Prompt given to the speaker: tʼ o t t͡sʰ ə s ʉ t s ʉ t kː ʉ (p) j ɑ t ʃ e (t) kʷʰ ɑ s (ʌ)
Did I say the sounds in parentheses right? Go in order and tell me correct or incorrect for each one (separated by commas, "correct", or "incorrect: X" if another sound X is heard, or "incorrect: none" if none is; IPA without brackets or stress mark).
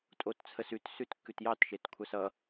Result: incorrect: t, correct, correct